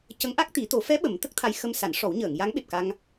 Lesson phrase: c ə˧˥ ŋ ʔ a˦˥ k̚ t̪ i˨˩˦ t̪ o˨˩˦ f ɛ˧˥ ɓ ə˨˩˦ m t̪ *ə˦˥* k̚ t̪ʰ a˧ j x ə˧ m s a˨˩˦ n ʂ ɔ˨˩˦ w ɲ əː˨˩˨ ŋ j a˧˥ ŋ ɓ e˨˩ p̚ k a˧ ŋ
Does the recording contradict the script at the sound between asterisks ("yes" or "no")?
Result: no